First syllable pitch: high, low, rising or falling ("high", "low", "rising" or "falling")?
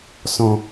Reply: low